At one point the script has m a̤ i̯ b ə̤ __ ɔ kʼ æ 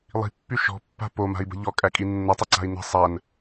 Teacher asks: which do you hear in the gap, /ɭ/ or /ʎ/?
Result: ʎ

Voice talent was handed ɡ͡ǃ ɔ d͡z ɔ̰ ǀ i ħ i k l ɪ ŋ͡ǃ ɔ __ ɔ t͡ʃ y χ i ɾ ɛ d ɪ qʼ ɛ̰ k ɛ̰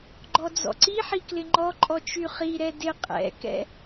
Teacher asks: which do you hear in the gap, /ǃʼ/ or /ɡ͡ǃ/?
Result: ǃʼ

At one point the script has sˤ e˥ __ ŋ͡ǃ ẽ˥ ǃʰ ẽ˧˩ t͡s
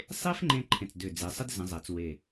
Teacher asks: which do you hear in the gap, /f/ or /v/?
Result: f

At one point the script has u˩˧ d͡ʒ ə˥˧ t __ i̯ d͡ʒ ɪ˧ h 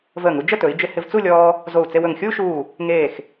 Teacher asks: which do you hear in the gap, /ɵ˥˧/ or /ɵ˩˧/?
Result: ɵ˩˧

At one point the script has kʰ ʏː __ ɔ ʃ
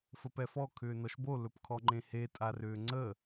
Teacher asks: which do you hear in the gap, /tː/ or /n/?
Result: n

